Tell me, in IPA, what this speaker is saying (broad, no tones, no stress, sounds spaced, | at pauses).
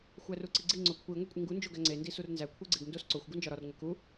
xʷ æ r u ǀ i ɡ͡ǀ i ŋ͡ǀ o kʷʰ i ŋʷ e kʷʼ i ŋ ɡ u n d͡ʒ o ɡ æ ŋ͡ǀ e n d i s u r n z æ kʷʰ e ɡ͡ǀ e ɡ n d o s ǀ o xʷ ɡ u n d͡ʒ ɒ ɾ ɒ r ŋʷ e k u